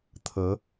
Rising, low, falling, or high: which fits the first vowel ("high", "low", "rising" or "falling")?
rising